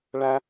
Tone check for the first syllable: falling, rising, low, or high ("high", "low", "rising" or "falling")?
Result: high